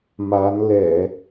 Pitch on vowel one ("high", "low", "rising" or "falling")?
rising